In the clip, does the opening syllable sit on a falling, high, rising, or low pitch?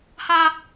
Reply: high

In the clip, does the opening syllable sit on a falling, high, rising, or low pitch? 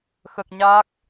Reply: low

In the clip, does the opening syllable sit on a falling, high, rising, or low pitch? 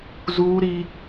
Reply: high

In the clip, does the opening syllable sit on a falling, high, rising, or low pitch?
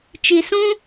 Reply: low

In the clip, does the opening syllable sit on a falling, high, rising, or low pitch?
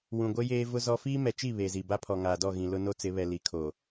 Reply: low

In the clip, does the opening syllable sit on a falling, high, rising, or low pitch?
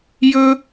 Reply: high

